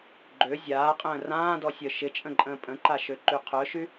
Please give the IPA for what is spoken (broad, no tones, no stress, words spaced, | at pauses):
ɡ͡ǃø zʲaːqʼə̃ː rãːdɔsʲœ ʃɪt͡ʃʼə̃ǃʼə̃ː pʼə̃ǃaʃøǃy qʰœʃy